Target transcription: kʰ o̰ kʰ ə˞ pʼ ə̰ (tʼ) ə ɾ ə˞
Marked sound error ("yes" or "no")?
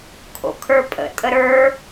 no